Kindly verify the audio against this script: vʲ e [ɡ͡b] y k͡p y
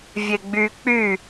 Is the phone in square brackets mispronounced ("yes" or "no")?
no